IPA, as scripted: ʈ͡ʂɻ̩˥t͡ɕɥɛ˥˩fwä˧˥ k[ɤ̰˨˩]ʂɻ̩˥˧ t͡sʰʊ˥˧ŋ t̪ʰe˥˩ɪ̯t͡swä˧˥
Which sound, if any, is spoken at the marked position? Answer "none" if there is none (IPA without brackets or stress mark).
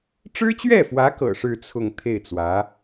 ɤ̰˨˩